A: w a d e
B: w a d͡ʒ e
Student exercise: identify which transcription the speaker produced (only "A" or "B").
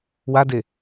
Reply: A